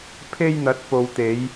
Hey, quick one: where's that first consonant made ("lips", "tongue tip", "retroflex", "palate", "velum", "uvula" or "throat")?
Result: lips